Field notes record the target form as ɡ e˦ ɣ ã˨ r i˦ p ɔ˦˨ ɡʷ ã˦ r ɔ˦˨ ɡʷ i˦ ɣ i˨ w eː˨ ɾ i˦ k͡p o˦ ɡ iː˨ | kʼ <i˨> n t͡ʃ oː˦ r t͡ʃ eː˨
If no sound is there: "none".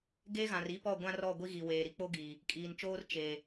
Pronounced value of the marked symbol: iː˨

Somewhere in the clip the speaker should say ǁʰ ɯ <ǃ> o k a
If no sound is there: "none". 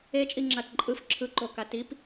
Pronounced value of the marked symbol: ǃ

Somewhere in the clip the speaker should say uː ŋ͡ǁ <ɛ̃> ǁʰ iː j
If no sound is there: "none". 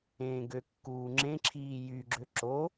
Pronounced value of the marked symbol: ẽ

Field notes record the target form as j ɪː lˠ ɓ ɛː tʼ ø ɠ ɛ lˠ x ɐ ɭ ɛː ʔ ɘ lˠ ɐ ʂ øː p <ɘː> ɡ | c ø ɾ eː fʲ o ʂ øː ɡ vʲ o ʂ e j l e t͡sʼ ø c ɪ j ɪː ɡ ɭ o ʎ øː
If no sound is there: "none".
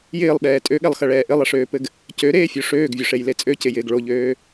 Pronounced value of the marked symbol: ɘ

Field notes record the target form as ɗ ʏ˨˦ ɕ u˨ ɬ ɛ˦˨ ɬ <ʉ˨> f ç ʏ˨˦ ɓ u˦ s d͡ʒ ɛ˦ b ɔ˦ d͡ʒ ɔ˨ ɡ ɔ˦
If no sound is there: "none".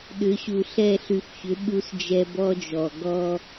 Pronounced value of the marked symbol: ʉ˨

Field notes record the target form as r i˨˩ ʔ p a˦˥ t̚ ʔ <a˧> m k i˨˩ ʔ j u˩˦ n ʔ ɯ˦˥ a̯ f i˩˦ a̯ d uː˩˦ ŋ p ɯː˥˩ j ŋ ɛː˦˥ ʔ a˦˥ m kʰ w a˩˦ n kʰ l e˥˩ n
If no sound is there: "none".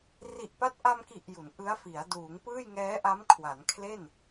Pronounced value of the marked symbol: a˧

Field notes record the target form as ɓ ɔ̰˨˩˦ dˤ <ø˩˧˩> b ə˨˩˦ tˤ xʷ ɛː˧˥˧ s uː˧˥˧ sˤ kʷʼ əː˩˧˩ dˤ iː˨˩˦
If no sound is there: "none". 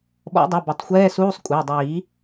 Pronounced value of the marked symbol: u˩˧˩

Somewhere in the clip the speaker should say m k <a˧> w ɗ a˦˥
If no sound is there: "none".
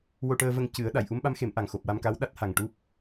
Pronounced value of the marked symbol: a˧˥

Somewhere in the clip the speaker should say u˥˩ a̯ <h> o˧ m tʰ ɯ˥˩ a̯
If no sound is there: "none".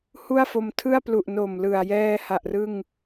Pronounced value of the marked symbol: f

